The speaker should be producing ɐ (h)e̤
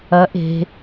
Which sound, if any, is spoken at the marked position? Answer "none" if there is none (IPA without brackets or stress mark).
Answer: ʔ